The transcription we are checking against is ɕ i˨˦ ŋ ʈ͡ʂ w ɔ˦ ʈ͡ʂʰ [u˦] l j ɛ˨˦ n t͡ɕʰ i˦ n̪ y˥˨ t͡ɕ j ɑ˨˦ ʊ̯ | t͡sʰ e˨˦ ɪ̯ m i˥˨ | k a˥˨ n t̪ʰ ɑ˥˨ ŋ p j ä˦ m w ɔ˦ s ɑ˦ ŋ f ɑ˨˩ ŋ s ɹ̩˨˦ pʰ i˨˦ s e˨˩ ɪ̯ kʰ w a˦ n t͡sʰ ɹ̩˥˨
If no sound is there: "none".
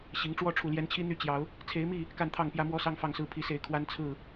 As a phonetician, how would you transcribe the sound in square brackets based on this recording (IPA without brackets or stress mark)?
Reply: u˨˩